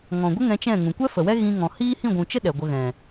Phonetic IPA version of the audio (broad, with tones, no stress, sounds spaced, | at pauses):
ŋ ɔ̃˨ ɡʷ ə˦ ŋ ɛ̃˧ t͡ʃ ɛ̃˦˨ ŋ ũ˨ kʷ ɛ˦ f ə˨ w ɛ˦ ɣ ĩ˧ ŋ ɔ̃˨ h iː˦ h ĩ˦˨ ɡʷ ũ˨ t͡ʃ ə˦ ɗ ɛ˨ ɡʷ ə˧ ɣ ɛ̃˨